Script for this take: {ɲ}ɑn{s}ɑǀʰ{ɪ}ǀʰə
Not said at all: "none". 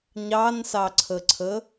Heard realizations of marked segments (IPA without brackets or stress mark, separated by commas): ɲ, s, ə